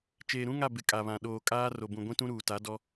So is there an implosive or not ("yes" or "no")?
yes